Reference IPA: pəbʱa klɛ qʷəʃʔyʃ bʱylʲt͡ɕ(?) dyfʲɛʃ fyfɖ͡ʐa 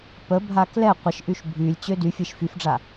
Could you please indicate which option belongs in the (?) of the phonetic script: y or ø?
ø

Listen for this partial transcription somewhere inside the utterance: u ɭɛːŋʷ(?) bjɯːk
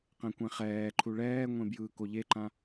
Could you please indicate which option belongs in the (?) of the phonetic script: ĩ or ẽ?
ẽ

